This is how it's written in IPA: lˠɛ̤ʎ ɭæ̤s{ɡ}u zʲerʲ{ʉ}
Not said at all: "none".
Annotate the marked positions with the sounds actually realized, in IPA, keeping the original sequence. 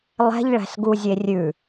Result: ɡ, ʉ

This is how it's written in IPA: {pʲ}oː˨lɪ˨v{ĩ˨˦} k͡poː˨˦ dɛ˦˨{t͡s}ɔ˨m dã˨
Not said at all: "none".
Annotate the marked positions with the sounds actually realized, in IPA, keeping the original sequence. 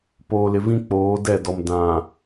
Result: p, ĩ˦, d

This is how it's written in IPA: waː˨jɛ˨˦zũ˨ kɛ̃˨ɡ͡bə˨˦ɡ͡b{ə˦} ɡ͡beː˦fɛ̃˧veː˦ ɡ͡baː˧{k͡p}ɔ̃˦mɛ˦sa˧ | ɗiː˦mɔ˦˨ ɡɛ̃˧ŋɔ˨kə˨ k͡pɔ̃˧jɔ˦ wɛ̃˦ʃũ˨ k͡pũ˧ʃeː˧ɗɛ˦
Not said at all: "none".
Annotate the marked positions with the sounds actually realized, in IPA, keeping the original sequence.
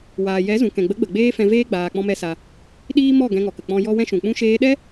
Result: ə˨, k͡p

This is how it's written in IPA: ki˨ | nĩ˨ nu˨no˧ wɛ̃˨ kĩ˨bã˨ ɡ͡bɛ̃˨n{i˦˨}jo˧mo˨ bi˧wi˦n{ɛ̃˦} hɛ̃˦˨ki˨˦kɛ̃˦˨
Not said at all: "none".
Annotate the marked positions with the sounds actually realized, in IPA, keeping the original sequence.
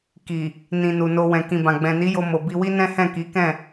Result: i˨˦, ɛ̃˦

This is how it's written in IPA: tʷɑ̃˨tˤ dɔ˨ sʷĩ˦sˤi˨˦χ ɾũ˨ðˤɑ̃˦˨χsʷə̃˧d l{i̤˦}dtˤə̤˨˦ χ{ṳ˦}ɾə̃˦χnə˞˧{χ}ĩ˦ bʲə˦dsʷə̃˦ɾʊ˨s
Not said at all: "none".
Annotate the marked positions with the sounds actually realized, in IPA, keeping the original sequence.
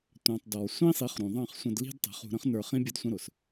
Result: i̤˦, ṳ˧, χ

